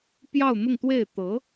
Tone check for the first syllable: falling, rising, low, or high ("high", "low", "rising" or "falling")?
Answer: falling